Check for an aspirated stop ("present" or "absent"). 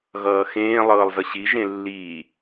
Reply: absent